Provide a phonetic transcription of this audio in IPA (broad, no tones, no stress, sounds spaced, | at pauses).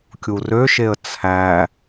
kʲ u r ø ʃ e ə̯ t͡sʰ æ